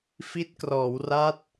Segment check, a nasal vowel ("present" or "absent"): absent